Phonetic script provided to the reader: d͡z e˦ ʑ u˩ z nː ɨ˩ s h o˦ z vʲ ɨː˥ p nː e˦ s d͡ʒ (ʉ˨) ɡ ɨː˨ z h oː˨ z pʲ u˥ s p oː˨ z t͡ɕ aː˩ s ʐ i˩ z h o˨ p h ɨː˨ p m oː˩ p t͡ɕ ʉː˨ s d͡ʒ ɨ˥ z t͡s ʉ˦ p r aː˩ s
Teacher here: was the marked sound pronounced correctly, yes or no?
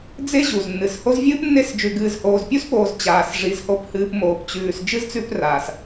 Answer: yes